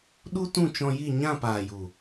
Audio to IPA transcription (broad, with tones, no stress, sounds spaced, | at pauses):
ɗ u˦ t ũ˦˨ t͡ʃ ɔ̃˧ j i˦˨ ɲ ã˦˨ p aː˨ j u˨